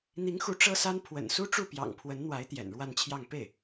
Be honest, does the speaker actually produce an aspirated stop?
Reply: yes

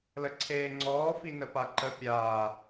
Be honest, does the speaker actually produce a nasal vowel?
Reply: no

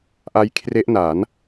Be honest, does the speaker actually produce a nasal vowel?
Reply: no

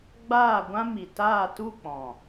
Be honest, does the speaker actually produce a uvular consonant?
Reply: no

